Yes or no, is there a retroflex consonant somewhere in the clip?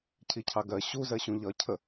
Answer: no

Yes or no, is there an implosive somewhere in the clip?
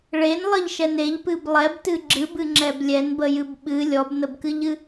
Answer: yes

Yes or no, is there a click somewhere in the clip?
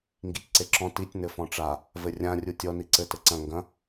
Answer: yes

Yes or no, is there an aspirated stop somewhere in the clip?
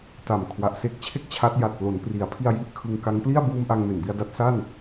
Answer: yes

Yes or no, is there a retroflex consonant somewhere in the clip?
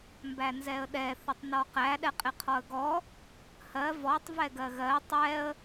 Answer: no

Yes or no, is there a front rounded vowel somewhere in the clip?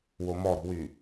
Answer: yes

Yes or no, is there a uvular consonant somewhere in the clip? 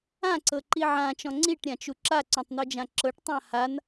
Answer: no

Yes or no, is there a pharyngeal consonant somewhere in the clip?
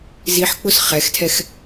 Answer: yes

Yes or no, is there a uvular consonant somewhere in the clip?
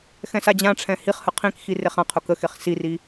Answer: yes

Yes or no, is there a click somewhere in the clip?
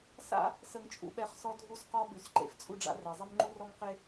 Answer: yes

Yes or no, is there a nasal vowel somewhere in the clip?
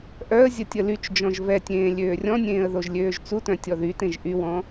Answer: yes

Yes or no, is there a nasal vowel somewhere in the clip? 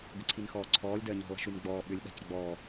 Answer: no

